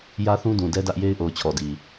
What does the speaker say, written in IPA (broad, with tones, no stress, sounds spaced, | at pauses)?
j ä˦ θ ũ˦ d ũ˨ d ɛ˦ d ä˦ ʔ j e˦ ɪ̯ ʔ o˨ ʊ̯ t͡ɕʰ ɔ˨ d i˨